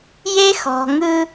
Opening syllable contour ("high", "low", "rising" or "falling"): high